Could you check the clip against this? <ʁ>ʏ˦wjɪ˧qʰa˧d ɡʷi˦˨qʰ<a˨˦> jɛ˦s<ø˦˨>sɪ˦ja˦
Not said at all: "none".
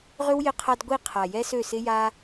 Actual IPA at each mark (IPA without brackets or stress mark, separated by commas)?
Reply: ʁ, a˨, ø˦˨